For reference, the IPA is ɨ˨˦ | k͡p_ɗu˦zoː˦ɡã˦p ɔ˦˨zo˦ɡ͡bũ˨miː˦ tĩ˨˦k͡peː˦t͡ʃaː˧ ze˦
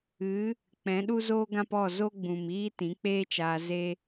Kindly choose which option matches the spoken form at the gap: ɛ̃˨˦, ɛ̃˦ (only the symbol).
ɛ̃˨˦